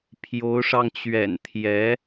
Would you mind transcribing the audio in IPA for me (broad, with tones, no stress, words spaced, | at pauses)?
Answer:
pʰjo˧˥ʊ̯ʂɑ˧ŋt͡ɕɥɛ̰˨˩n t̪ʰjɛ˧˥